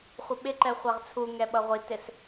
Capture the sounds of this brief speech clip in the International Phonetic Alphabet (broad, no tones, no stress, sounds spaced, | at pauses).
χʷ ɪ ɓ ɪ ǃ ɛ χʷ æ ʁ t͡sʰ u ŋ ɛ ɓ ʌ ʁʷ i t ɪ s